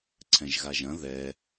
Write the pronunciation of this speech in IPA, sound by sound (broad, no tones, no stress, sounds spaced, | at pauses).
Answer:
ǀʰ ɛ̃ ʒ ɣ a ʒ ɐ̃ ð ɛ